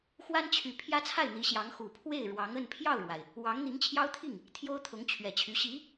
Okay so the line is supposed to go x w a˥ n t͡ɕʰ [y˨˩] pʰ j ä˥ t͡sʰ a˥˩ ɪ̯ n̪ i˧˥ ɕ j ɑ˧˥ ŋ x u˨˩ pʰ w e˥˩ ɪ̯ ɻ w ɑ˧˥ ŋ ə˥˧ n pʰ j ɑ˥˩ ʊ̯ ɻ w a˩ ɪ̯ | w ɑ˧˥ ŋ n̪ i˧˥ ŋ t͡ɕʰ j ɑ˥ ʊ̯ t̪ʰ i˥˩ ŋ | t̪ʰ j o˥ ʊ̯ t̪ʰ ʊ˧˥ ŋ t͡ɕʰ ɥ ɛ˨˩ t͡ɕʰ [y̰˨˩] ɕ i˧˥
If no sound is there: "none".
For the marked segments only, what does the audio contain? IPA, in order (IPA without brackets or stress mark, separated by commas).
y˨˩, y˧˥